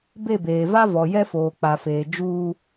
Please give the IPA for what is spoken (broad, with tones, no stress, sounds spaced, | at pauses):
b e˦˨ b eː˨ v a˦ v ɔ˨ j ɛ˦ f oː˨ k͡p a˨ f eː˨ d͡ʒ uː˦